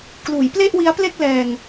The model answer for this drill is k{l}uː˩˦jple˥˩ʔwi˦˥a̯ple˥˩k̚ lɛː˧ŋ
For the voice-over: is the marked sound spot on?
yes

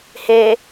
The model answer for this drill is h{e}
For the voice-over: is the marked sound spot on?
yes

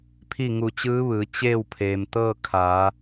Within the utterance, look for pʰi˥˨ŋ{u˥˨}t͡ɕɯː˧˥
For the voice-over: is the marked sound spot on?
no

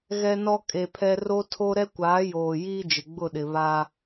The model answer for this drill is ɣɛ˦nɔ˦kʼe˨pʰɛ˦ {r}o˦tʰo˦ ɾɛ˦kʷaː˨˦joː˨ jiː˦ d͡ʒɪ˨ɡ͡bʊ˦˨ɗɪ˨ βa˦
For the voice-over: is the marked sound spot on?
yes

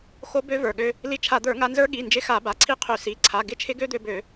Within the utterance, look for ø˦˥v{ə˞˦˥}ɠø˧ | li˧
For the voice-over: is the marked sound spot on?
no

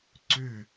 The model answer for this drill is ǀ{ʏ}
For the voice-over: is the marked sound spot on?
yes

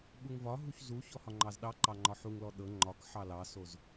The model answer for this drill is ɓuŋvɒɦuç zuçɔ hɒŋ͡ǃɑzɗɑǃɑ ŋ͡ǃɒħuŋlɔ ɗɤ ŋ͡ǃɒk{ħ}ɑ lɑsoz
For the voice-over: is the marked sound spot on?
yes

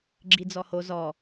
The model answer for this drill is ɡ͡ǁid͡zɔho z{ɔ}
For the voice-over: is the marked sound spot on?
yes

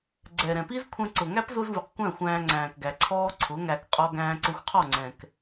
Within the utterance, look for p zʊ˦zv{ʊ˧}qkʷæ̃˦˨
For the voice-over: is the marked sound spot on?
yes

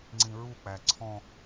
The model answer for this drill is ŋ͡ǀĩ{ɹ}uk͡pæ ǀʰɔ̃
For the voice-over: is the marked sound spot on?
yes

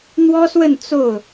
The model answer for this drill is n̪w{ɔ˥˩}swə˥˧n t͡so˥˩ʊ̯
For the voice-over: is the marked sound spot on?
no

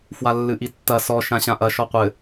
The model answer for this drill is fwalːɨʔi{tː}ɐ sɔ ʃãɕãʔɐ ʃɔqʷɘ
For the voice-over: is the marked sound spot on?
yes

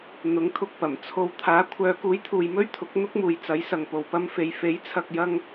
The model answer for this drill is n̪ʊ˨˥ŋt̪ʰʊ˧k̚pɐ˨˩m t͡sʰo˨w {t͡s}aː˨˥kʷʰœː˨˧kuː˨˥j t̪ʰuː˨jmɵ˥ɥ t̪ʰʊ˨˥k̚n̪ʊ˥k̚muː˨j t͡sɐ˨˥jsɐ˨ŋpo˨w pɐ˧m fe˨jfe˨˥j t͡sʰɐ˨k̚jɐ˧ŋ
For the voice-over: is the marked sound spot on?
no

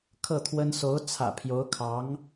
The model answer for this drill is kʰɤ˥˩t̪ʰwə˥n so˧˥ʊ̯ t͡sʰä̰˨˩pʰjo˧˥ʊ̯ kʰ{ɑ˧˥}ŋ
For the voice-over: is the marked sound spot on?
yes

